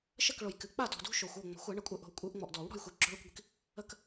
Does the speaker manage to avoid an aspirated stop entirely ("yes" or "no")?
yes